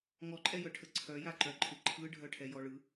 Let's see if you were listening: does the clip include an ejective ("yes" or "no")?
yes